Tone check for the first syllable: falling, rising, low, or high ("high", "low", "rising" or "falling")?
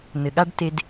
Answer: low